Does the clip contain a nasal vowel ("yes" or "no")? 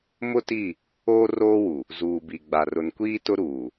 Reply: no